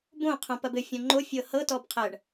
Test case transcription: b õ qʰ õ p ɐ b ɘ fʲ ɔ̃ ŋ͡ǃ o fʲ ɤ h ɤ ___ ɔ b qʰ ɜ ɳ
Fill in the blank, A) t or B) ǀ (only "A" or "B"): A